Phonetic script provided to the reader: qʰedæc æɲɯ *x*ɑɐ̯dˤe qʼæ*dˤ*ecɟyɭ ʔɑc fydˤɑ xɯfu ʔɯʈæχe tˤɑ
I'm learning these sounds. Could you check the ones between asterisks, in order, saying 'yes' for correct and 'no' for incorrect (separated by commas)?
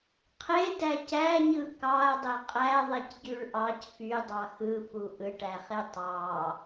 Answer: no, no